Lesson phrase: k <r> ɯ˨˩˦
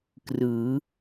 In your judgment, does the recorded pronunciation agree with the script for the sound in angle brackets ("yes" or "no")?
yes